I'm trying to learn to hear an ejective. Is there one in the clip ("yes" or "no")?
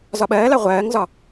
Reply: no